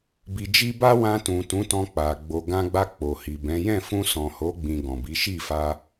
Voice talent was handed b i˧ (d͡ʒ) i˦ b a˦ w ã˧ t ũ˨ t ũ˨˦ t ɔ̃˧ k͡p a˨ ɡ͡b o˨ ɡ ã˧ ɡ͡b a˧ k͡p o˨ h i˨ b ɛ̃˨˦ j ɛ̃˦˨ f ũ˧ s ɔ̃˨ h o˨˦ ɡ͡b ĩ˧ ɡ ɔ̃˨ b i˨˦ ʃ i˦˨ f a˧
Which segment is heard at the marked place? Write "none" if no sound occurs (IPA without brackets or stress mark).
d͡ʒ